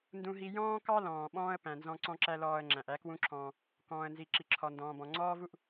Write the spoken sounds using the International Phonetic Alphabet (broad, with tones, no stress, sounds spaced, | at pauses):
n d ũ˧ ɦ i˧ j ɔ̃ː˥ k ɑ˥ l ɔ̃ː˩ ɓ ɔ̃ː˥ ə̯ p æ̃˩ n z ɔ̃˧ ǀ ɔ̃˥ ǁ æ˥ l ɔː˧ ə̯ ŋ͡ǁ æ̃˩ ʔ æ˥ k w ũ˥ ǁʰ ɔ̃ː˧ | k ɔ̃ː˩ ə̯ n z i˩ ǁ i˩ ǁʰ ɔ˩ n d ɔ̃ː˩ b ɔ̃˩ ŋ͡ǀ ɔː˥ v u˥ ʔ